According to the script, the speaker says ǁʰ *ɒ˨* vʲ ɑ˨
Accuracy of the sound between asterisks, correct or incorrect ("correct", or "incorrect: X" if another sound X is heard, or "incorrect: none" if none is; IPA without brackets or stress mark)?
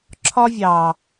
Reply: incorrect: ɒ˦